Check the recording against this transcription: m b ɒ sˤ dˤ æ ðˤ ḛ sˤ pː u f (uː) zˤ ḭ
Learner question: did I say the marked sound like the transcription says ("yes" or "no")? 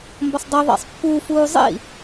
yes